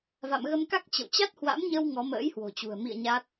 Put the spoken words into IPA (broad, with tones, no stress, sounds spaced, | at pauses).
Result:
v a̰˧˨ m ɣ ə˧ m k a˦˥ k̚ t͡ɕ ə̰˧˨ w t͡ɕ a˦˥ t̚ h w a̰˧˥ m ɲ ə˧ w ŋ ɔ˨˦ m ə̰ː˧˥ j h w o̤˨˩ t͡ɕ ṳ˨˩ ə̯ m ḭ˧˨ ə̯ ɲ a˦˥ t̚